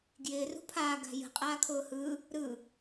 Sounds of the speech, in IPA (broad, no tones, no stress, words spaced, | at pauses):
ɡjɪː rṳpʰaː ɡa̤jə̤ qʼaːkʰʊːhɯ | ɾɯ